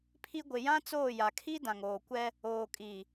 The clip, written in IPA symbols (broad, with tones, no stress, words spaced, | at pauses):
pʰi˦ ɡʷɪ˨ jã˦t͡soː˦˨ja˨kʰi˦ dã˨ŋoː˨kʷɛ˦ | oː˨kʼi˨